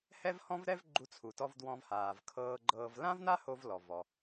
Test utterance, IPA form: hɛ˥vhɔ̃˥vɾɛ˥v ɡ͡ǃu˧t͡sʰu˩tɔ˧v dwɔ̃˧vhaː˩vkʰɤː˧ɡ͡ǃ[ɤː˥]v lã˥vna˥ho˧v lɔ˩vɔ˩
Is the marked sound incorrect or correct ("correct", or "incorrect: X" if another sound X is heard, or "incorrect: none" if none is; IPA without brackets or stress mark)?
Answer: incorrect: ɤː˧